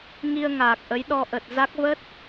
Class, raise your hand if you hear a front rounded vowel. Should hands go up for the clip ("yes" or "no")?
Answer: no